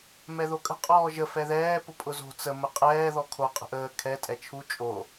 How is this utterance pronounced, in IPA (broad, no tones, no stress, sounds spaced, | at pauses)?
m ɛ ð o kʼ ə̤ qʼ ɔː ʒ ə f ɛ ð ɛː p ʊ pʼ ʊ z o̤ t͡s ə m ə qʼ ɛː ð ɔ kʰ o qʼ ə̤ ʔ əː kʰ ɛ tʼ ɛ t͡ʃʰ u t͡ʃʼ o